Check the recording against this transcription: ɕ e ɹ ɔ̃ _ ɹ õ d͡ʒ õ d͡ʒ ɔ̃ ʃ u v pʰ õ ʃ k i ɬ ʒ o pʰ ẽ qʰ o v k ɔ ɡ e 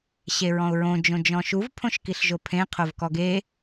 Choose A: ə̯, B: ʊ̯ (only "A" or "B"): B